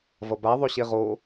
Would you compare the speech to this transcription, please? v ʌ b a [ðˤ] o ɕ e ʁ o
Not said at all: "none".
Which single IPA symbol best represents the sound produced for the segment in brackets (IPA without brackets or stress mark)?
ðˤ